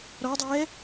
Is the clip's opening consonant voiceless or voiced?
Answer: voiced